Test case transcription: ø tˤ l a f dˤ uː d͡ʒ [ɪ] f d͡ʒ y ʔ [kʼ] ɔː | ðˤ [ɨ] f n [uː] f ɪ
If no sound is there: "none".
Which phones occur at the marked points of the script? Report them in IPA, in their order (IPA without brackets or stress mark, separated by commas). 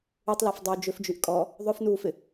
ʏ, kʼ, ʏ, uː